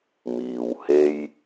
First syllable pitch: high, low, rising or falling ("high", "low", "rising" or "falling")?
low